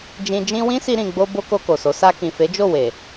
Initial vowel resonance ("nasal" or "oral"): nasal